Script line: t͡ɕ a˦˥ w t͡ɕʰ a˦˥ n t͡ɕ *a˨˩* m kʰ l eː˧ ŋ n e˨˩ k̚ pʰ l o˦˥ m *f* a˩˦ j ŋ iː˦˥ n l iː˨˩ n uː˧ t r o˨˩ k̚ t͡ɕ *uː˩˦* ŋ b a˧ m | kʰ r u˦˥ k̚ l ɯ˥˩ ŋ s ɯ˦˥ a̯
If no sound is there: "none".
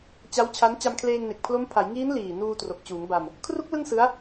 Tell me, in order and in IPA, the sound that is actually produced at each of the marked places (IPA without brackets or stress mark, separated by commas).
a˧, pʰ, uː˩˦